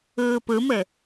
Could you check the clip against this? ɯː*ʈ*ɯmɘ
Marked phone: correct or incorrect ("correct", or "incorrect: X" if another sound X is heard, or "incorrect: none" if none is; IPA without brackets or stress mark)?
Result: incorrect: p